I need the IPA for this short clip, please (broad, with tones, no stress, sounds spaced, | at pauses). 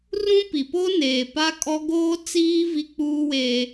r ũ˦ p i˨ p o˦ n eː˨ p a˦ kʼ ɔ˦ ɡ oː˦ t͡s iː˦ v i˦ k͡p uː˦ w eː˦